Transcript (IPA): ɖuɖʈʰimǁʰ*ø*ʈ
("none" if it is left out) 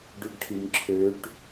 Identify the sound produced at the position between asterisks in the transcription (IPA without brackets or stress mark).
ø